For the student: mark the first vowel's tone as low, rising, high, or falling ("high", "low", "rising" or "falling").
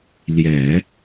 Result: low